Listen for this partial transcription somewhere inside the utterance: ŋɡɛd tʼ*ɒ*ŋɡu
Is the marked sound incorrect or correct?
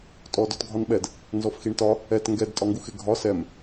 correct